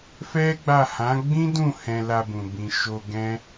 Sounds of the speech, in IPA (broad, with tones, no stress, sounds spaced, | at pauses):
f ɛ˦ ɡ͡b a˦˨ h ã˨˦ ɡ͡b ĩ˦ d ũ˦˨ h ɛ̃˧ l a˧ b ũ˨ b ĩ˨ ʃ o˧ ɡ ɛ̃˦